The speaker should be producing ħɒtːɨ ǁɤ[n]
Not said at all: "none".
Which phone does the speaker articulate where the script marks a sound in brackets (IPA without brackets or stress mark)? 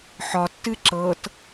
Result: t